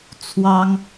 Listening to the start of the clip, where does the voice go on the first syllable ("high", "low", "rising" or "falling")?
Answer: high